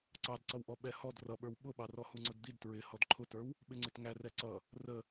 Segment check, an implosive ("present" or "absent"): present